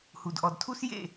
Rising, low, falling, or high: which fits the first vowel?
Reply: low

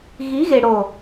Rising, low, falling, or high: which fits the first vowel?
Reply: rising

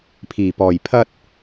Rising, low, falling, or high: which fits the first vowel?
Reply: low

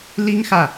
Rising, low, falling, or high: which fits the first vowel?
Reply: high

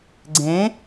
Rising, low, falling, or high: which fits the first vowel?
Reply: rising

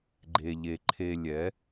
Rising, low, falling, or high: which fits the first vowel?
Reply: low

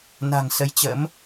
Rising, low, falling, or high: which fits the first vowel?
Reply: low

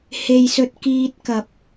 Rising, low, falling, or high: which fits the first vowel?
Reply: low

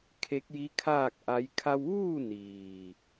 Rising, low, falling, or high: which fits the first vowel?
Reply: rising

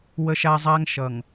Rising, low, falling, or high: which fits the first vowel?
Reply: high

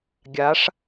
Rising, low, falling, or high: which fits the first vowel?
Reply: rising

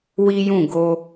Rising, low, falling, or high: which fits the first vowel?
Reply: high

